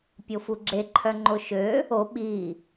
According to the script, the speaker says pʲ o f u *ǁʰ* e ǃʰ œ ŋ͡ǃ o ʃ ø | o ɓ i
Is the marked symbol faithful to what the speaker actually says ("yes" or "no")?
no